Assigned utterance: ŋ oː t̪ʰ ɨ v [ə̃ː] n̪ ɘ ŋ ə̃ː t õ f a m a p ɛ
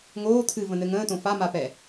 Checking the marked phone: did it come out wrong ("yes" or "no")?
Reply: yes